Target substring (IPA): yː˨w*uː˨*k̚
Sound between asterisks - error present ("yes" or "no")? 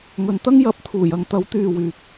yes